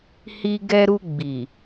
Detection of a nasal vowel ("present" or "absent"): absent